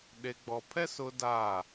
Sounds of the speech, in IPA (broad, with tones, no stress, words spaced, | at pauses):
ɗe˨ɡ͡bɔ˨pʰɛ˦ sʊ˦daː˦˨